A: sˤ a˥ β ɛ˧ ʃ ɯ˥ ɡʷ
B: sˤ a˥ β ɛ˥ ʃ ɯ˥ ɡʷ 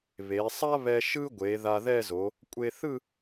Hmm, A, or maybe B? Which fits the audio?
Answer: A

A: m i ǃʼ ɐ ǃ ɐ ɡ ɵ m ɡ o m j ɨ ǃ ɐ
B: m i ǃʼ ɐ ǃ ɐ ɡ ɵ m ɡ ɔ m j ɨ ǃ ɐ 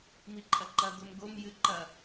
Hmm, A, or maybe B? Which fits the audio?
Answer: A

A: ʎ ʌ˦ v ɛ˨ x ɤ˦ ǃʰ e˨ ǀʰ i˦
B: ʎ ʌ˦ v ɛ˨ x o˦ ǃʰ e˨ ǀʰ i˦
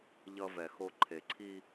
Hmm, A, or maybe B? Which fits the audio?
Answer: B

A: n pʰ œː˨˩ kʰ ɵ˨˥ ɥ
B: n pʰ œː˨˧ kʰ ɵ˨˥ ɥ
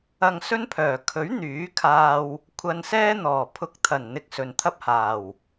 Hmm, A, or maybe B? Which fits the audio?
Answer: A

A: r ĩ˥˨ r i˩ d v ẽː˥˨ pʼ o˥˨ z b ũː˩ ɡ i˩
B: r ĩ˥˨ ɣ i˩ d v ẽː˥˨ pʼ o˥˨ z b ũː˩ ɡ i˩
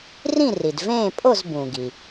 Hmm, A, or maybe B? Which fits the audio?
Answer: A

